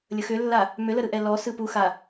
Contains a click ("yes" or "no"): no